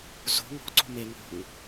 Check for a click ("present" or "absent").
present